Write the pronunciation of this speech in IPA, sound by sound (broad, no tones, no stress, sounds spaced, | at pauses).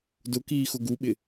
d ʊ k iː x ʊ ɡ u ɓ ɪ